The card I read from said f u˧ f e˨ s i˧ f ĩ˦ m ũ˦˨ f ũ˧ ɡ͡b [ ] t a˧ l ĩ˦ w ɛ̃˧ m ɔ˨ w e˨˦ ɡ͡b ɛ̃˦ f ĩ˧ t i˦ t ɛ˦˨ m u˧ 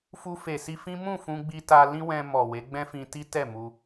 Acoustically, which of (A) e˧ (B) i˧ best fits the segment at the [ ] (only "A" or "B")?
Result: B